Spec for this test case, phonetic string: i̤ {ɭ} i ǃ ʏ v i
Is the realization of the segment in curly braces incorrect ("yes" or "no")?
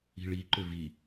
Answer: no